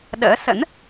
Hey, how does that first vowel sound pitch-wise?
rising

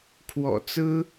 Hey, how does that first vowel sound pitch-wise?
low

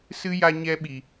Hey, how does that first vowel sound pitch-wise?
high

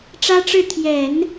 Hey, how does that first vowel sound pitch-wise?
high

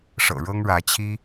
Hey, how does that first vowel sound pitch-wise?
low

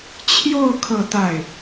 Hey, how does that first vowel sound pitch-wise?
falling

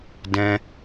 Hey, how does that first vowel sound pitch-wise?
high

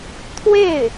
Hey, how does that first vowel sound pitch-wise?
falling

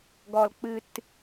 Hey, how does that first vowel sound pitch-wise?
low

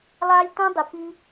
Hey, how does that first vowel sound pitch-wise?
high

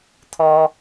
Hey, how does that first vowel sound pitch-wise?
high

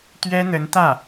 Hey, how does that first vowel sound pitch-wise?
high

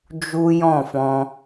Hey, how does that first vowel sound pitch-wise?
high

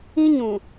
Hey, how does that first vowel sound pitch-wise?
high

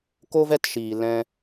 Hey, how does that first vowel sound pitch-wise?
high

